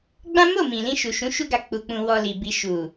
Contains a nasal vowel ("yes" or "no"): yes